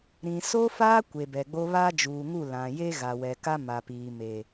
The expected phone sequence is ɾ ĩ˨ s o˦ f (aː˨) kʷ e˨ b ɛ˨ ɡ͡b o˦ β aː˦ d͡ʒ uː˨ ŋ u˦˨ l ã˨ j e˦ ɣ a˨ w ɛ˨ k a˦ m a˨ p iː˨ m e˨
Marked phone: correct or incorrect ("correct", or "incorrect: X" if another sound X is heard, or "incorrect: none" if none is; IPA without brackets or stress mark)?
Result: incorrect: aː˦